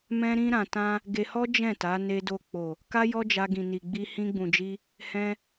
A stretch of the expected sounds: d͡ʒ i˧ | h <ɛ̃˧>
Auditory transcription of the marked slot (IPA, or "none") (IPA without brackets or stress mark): ɛ̃˧